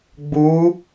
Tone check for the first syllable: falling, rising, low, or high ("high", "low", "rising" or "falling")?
rising